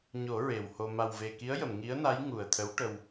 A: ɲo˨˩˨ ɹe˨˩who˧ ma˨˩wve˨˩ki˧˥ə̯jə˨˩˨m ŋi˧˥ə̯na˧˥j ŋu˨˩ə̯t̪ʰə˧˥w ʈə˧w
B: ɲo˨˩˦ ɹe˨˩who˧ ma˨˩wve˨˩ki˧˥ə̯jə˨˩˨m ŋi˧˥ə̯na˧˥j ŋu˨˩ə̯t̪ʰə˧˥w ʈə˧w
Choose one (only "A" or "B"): B